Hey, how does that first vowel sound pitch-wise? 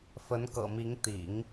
rising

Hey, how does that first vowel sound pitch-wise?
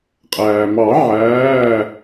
low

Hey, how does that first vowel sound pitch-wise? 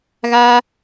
high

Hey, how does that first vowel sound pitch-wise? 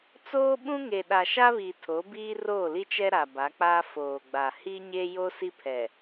high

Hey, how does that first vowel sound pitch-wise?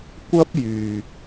high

